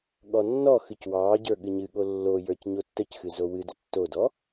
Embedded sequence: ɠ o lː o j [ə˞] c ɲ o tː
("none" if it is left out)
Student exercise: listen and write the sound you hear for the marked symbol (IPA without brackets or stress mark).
ə˞